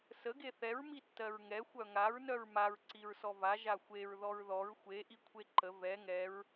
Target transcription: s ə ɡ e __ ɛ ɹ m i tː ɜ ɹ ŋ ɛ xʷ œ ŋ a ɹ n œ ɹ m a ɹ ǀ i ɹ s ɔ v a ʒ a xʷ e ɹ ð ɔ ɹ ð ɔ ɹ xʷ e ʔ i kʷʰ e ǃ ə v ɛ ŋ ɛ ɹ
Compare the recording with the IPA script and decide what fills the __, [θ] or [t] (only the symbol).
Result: θ